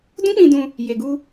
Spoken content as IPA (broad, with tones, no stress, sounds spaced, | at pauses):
d ũ˦ k͡p ĩ˧ d ũ˧ | j e˨ ɡ u˧